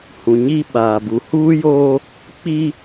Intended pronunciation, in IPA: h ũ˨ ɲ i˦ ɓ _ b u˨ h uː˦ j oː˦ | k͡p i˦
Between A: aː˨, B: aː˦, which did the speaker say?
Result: A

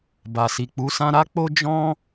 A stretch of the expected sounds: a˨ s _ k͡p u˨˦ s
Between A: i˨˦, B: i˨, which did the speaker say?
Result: B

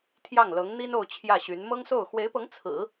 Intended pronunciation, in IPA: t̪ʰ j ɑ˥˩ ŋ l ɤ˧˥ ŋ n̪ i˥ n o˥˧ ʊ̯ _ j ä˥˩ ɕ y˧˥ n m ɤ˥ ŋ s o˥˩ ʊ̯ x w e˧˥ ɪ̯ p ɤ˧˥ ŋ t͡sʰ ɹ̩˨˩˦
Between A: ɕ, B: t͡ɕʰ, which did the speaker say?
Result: B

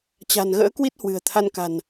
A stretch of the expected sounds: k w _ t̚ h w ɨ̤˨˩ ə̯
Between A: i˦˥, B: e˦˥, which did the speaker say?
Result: A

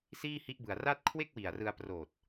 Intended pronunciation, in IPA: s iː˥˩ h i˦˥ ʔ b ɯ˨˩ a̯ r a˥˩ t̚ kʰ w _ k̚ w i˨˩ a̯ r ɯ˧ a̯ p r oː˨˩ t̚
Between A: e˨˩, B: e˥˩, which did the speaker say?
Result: B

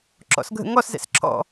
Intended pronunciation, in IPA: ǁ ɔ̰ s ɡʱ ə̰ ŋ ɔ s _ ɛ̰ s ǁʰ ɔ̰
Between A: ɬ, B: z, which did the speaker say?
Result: B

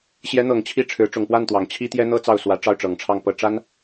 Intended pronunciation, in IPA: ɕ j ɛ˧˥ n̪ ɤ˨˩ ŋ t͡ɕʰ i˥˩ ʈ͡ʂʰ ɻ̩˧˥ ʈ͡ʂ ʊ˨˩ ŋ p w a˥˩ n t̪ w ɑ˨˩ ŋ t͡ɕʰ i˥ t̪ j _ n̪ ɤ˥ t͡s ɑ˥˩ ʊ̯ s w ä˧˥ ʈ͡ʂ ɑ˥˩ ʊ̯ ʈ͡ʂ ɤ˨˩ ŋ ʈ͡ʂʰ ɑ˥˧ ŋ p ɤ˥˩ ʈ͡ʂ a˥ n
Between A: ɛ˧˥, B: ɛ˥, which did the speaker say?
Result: B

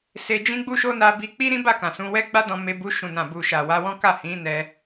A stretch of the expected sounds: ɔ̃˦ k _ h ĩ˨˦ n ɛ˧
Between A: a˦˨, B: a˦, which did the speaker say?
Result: A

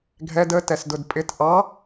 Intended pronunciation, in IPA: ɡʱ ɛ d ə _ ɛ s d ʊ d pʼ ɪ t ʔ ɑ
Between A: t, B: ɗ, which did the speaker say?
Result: A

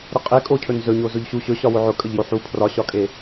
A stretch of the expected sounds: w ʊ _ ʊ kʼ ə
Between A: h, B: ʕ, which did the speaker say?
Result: B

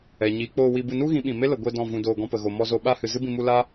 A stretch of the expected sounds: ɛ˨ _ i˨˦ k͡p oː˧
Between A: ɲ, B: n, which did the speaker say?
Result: A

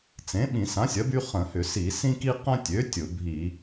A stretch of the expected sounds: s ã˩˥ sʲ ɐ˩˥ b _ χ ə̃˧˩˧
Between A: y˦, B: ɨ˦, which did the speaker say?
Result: A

